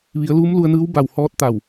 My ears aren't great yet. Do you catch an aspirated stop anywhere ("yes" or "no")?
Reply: no